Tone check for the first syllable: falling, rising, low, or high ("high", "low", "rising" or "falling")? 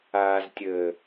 low